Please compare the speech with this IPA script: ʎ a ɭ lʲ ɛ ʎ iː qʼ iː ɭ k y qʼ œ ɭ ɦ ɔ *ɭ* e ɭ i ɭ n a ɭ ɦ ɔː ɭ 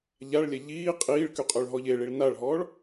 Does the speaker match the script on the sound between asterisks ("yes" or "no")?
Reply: no